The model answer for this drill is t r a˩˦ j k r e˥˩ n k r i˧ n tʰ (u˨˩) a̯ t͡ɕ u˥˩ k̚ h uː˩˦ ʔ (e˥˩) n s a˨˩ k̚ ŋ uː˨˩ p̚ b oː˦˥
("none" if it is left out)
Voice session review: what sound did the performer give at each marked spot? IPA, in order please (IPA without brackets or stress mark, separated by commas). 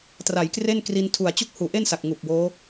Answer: u˨˩, e˥˩